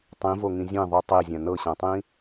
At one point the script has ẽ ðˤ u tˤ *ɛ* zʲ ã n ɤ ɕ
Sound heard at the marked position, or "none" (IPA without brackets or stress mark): e